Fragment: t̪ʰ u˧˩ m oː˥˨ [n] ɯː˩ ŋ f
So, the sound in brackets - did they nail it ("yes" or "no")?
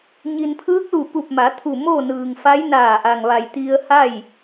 yes